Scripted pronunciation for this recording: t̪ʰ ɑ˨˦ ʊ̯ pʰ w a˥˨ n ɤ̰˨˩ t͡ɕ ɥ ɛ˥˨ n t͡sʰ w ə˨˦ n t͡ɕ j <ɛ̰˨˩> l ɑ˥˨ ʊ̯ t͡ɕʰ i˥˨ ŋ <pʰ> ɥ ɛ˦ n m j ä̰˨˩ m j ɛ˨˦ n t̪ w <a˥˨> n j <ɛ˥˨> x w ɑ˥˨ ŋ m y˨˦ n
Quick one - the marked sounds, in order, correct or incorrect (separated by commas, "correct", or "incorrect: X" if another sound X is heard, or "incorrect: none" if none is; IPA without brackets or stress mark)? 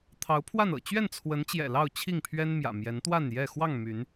correct, correct, correct, correct